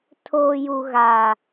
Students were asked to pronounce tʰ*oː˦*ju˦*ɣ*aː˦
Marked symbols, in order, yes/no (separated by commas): yes, yes